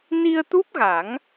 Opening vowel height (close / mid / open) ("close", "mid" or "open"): close